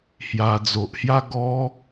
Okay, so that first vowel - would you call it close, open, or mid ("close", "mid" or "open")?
open